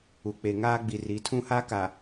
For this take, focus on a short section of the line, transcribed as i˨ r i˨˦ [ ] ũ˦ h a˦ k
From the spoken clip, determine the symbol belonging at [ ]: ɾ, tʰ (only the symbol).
tʰ